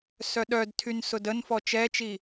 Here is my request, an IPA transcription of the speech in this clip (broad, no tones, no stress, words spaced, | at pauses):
sœɗœdtʰyn sʊdənfɔ t͡ʃɛt͡ʃi